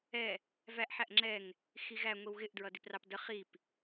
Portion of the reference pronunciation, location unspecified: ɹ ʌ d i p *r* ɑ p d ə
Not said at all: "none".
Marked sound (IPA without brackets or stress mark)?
r